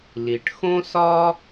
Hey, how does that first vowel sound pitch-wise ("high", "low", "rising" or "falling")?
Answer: low